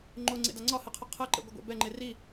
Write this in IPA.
ŋ͡ǃ o ŋ͡ǀ ḛ d a ŋ͡ǀ ɒ h e qʰ ə qʰ ɛ ǃ ḛ ɡʷ ə ɡʷ a̰ b ɛ ŋ͡ǃ e r i

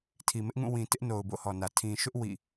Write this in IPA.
tʰ i˨ m ɪ˦ ʔ ŋ ũ˦˨ w ĩ˨ t ɪ˦ ʔ n o˨ ʊ̯ b o̰˦˨ h ɔ˨ n ä˨ tʰ ĩ˨ ʃ ʊ˦ ʔ w ḭ˦˨

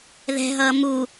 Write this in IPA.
ð ɛ̤ ɦ ʌː m u

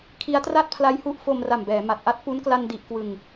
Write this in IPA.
kʰ i˦˥ a̯ t r a˥˩ t̚ pʰ l a˦˥ j h u˦˥ ʔ f o˧ m r a˨˩ m b ɛː˩˦ m a˨˩ t̚ ʔ a˦˥ t̚ p u˦˥ n k l a˧ n d i˨˩ ʔ k w ɯ˨˩ ŋ

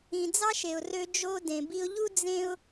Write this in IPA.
ĩ˩ d͡z ɑ˥ ʃ e˩ ʊ̯ r ø˧ d͡ʒ o˧ d ẽ˩ b i˧ ʊ̯ ʎ u˥ d͡z ẽ˥ ʊ̯

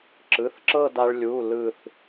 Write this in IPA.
ǁ ɯ˩˧˩ θ ǁ ɤ˥˧ d a˧ ɭ lʲ u˩˧˩ l ɯ˧˩ θ

